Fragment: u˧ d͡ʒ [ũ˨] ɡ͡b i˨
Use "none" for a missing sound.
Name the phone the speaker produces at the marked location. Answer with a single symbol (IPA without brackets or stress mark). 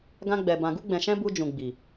ũ˨